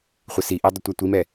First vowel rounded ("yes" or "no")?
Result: no